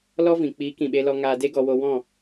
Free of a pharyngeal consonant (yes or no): yes